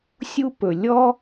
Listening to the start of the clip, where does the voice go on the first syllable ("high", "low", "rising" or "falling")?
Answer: high